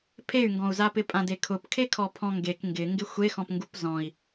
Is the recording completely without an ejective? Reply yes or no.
no